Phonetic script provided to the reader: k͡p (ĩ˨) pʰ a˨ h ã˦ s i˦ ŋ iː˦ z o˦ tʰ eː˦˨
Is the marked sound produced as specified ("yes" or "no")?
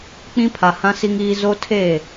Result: no